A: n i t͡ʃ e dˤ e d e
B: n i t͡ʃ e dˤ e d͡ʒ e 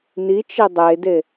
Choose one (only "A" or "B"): A